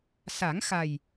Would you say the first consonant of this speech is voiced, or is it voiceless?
voiceless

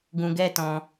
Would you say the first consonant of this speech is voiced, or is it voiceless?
voiced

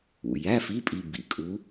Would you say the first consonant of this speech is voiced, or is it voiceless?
voiced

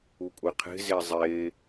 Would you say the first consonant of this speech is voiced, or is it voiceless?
voiceless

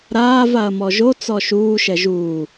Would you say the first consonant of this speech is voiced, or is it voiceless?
voiced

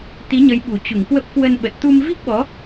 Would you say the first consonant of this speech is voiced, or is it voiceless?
voiceless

